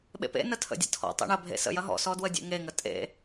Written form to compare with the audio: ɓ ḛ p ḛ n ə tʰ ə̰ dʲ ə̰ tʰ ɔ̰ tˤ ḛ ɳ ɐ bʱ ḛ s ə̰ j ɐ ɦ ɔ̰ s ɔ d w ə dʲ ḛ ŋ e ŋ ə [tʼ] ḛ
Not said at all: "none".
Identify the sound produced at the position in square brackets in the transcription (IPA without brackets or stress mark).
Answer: tʼ